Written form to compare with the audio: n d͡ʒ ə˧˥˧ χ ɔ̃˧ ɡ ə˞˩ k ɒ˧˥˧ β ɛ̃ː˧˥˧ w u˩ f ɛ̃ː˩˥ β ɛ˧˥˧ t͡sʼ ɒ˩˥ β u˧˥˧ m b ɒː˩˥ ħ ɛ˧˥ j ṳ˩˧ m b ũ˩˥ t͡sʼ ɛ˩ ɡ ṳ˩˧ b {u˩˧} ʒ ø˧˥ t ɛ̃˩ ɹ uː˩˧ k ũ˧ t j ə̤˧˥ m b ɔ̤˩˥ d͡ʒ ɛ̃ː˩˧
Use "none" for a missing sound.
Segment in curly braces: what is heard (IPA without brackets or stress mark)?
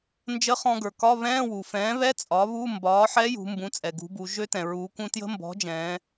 u˩˧